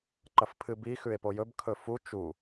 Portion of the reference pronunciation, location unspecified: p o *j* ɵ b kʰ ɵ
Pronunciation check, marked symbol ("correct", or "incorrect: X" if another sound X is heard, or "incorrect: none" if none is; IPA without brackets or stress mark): correct